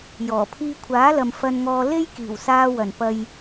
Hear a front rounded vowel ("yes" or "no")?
no